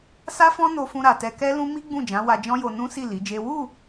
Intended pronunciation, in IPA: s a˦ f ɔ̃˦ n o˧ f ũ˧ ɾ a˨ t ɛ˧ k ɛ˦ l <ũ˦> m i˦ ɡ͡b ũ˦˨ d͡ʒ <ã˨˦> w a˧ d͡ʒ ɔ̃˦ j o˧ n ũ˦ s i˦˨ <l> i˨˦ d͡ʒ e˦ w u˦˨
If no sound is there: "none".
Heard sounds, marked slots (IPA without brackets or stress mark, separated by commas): ũ˦, ã˨˦, l